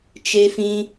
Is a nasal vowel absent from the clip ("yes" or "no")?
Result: no